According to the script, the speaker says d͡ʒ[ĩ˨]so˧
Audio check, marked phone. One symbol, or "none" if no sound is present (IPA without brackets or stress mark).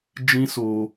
ĩ˦